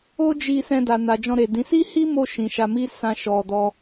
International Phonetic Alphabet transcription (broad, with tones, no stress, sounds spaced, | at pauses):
o˦ d͡ʒ i˧ s ɛ̃˧ d a˨ n a˨ d͡ʒ ɔ̃˧ ɾ e˨ d ĩ˨˦ s i˦ h i˦ m o˧ ʃ ĩ˨ ʃ a˧ m i˦ s ã˧ ʃ ɔ˧ d ɔ˦